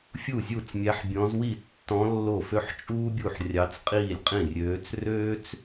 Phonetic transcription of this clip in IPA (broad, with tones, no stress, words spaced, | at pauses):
fʲu˥˩zʲu˥˩t͡smʲæ˧˥ħbʲɔ̃˧˥z wi˥˩ tːɔ̃˧˥ lːo˥˩fø˥ħ t͡ʃʼuː˥bʲu˥˩ħrʲɑ˧˥t͡s qʼiː˥˩lʲqʼĩ˥˩rʲøː˧˥t͡s røː˥t͡s